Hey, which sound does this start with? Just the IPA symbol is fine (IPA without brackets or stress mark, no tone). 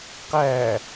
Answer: q